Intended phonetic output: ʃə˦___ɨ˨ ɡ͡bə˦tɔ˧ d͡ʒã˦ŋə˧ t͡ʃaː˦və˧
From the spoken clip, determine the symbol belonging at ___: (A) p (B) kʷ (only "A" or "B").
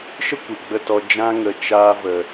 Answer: B